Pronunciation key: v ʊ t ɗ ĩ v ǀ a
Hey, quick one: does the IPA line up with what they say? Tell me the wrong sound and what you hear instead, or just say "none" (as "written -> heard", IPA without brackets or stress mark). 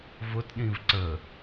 a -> ə